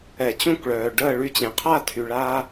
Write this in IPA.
ɛ˨˩˦t͡ɕũ˥˩kɭœː˩ ɖəː˥˩ ɭy˧t͡ɕẽ˩qʰa˥˩tʰy˩ ɭa˧

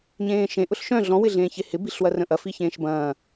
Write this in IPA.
ɲẽːʃẽ ʔʊɬʃœ̃ ɮɔ̃wɪɮẽː çehɪ biɬwɐrə̃ʔɐ fiçẽːʃbɐ̃ː

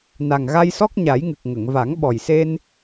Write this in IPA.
na˨˩ŋɣa˧jsɔ˦˥k̚ ɲa˨˩˦jŋɨ˨˩k̚ ŋə˨˩˨ŋ va˨˩˦ŋɓɔ˨˩jse˧n

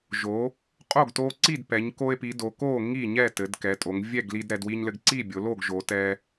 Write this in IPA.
ʒo˩˧ | qʼo˥˩ɡto˧ǀi˥˩dpɛ˩˧ɲ ko˧e̯pi˩˧do˩˧ ko˥˩ ŋi˥˩ɲɛ˥˩ tɘ˩˧dkɛ˩˧tʼo˩˧ŋ vʲɛ˥˩ɡli˧dɾɛ˩˧dwi˧ɲ lɘ˧ɡǀi˥˩bʲo˩˧lo˥˩ɡ ʒo˩˧tɛ˧

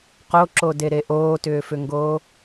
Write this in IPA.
qoǁodeɾe ʔoːtʏːfʏŋɡoː

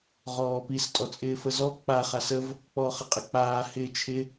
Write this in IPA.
ʁɔːpis tʼɔt͡sʼɪːfəzɔ k͡pa χasəv | k͡pɔːχəqʼɪk͡paː hɪːt͡ʃʰɪ

